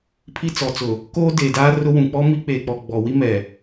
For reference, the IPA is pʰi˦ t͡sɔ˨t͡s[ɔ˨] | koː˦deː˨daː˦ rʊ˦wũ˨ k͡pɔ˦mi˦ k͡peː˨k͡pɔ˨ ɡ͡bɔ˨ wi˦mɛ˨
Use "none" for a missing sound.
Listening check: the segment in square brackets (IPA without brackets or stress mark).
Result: ʊ˨